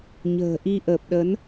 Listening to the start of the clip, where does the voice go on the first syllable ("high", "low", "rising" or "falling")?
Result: low